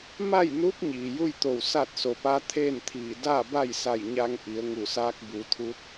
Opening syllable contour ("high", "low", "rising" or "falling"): falling